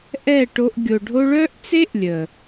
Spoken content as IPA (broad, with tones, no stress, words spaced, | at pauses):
ʔɛ˦˨ʈo˧ʔ ɡʲo˨ɖʱo˧ɭœ˦ʔt͡se˦ʔ lʲə˨